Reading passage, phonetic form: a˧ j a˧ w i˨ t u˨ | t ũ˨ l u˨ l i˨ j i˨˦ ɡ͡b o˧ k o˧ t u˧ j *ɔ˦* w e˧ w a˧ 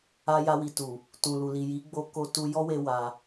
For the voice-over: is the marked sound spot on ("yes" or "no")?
yes